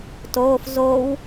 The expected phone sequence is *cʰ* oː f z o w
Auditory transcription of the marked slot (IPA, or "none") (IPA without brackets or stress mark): t